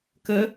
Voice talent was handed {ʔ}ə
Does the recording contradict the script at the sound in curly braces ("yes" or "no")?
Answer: yes